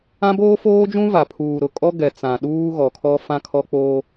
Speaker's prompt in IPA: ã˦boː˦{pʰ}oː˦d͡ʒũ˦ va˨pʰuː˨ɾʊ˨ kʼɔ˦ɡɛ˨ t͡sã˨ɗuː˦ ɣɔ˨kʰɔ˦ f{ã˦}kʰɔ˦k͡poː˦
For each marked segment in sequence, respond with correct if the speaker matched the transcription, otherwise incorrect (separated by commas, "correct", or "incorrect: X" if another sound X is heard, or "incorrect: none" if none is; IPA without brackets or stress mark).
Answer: incorrect: f, correct